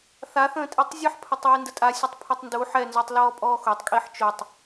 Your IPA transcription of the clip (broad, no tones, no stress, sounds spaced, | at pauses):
θ a θ ə̃ː tʼ i tˤ zʲ ə ħ pʰ ə tˤ w i n d ə tʼ a sʲ ə tˤ pʰ ɛ tˤ n d u ħ ɛ n z œ tˤ l ɔː pʼ ɔː x o tˤ kʼ i ħ t͡ʃ o tˤ